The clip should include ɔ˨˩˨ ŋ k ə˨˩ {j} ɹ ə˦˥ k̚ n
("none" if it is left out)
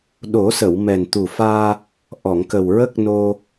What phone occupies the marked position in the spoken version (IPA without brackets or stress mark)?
w